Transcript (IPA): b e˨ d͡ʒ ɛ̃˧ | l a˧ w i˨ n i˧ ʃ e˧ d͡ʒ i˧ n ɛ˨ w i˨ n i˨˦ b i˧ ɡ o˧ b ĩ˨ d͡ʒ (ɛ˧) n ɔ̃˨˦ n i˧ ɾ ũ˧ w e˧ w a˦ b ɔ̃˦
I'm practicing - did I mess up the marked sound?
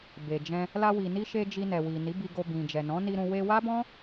yes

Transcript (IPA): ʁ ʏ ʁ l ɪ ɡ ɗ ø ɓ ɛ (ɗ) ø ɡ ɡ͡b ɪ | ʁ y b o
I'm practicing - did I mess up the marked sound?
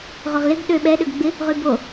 no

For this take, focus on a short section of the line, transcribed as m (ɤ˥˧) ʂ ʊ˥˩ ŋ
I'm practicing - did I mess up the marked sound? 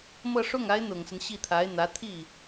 no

